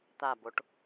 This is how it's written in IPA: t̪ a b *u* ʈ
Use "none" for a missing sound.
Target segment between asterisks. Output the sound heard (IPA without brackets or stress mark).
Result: o